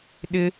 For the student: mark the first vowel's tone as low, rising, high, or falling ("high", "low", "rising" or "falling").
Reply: high